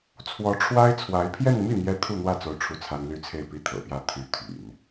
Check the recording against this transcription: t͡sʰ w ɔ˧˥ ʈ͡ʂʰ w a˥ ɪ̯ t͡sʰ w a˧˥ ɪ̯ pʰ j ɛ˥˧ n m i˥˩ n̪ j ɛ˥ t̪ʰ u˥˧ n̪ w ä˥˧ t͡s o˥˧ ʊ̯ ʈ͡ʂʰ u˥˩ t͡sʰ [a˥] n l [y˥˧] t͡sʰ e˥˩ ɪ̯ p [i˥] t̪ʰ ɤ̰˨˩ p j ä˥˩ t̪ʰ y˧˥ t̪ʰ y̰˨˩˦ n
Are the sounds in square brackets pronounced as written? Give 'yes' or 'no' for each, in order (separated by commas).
yes, yes, yes